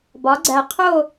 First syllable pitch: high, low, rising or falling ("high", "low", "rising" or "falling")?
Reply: rising